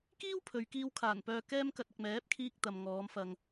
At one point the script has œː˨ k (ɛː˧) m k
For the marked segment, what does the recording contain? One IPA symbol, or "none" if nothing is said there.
ɛː˧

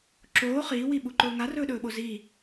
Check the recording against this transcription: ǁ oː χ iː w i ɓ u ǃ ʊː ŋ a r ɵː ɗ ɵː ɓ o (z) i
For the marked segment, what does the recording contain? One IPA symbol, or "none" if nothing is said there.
z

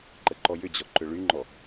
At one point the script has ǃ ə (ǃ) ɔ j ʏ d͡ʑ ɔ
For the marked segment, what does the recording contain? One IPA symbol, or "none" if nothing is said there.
ǃ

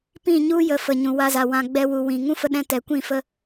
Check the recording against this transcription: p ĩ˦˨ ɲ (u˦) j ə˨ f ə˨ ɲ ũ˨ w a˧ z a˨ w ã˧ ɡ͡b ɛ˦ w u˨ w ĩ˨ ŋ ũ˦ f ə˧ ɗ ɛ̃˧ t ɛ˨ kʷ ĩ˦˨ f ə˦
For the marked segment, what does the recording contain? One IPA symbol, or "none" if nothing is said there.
u˦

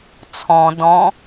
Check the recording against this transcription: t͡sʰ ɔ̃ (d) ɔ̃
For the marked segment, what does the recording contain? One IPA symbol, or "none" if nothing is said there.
d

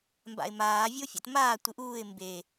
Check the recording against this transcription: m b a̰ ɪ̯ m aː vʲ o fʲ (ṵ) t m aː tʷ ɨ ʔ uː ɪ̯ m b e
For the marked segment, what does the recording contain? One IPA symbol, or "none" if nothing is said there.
o̰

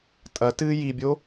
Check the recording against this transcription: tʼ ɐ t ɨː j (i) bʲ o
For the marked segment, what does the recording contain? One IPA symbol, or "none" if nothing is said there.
i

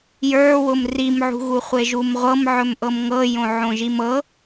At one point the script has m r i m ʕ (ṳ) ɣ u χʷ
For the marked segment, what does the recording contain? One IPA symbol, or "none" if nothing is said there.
ṳ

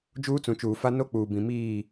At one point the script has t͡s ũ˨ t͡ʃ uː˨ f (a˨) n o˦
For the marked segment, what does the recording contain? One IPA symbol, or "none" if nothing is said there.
a˦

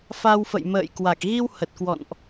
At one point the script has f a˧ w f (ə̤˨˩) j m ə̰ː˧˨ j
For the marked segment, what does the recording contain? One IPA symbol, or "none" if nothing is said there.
ə̰˧˨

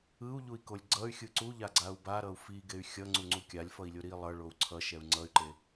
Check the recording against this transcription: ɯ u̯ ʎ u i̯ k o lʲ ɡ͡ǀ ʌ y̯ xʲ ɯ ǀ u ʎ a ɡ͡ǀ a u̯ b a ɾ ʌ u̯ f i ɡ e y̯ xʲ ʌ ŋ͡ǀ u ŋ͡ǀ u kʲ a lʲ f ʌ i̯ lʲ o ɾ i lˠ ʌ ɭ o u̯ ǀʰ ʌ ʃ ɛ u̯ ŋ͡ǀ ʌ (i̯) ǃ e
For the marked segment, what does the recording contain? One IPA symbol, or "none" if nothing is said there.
y̯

